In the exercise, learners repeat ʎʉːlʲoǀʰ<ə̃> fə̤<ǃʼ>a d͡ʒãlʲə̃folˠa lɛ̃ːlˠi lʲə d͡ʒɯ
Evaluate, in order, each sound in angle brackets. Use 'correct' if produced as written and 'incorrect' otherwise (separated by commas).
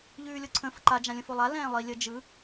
correct, incorrect